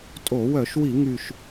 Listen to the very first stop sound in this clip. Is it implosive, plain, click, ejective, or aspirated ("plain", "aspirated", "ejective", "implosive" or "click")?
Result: ejective